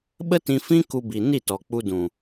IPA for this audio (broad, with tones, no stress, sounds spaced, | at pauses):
ɓ ə˦ t ĩ˧ f ĩ˦ k u˧ b i˨ n i˦˨ t ɔ˨ k͡p u˧ d ũ˨